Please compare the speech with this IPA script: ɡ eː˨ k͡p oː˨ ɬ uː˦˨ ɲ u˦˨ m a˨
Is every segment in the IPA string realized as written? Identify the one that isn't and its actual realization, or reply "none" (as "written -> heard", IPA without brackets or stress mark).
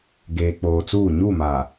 ɬ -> t͡s